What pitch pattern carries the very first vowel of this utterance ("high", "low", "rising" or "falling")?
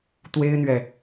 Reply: high